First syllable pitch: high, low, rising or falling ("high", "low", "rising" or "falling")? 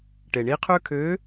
low